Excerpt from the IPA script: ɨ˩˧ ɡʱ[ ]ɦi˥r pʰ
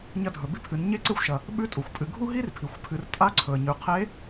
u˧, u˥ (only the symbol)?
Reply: u˥